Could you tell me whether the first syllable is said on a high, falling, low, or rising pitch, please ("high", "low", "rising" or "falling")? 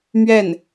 falling